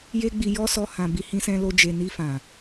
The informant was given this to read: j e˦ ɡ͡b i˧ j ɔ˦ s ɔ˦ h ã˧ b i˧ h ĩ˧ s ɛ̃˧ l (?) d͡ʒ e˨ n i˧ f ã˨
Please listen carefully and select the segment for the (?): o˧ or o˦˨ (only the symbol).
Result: o˧